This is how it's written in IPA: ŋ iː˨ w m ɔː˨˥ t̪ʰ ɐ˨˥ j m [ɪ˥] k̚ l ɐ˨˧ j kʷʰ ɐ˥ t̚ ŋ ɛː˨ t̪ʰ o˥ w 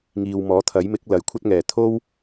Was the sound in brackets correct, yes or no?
no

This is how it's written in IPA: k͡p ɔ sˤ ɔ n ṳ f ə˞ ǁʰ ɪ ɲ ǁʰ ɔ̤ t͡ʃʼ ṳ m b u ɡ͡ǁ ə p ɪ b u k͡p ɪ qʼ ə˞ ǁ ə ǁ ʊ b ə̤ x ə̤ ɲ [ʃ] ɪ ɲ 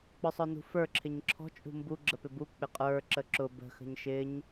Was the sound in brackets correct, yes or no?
yes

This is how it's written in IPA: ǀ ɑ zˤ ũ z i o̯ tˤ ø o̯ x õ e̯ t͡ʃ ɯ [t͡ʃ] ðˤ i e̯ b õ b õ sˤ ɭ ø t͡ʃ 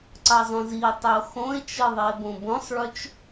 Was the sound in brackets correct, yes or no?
no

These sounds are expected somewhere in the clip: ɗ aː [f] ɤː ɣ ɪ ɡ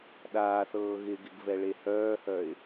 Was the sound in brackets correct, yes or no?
no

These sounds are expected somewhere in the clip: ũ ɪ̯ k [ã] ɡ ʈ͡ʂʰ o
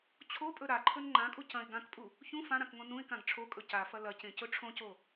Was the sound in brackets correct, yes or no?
yes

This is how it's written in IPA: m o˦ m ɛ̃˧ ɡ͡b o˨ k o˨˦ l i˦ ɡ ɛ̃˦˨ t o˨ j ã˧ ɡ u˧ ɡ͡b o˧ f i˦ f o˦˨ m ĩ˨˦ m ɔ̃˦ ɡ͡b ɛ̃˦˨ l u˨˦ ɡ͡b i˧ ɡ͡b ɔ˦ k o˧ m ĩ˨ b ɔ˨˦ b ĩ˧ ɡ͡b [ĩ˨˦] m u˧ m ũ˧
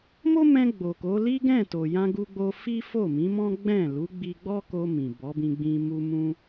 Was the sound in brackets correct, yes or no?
no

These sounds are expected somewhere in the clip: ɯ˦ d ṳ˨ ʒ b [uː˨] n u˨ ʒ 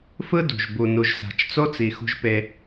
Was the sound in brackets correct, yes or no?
no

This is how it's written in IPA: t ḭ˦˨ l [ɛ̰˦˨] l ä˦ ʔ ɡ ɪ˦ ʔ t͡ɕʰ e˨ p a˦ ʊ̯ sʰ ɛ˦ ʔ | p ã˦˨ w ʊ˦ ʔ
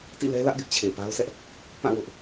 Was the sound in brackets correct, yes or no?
no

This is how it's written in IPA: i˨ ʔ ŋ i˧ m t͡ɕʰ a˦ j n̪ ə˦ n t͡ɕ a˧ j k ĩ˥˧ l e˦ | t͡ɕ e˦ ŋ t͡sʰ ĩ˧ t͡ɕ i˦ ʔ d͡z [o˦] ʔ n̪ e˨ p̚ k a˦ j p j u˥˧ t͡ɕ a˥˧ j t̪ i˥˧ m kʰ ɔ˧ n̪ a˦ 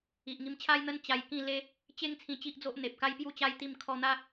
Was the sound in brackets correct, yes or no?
yes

